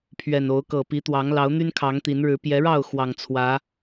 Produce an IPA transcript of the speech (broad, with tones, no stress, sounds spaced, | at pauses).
pʰ ɥ ɛ˨˩ n o˨˦ ʊ̯ k ɤ˨˩ p i˨˦ t̪ w ɑ˨˦ ŋ l ɑ˨˦ ʊ̯ n̪ y˦ n kʰ ɑ˨˦ ŋ t̪ i˨˦ n ɻ ɻ̩˨˦ p j ɛ˨˦ ɻ ɑ˥˨ ʊ̯ x w ɑ˨˩ ŋ t͡sʰ w ä˨˦